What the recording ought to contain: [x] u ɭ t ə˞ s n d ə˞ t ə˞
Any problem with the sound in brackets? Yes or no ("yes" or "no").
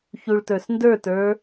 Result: yes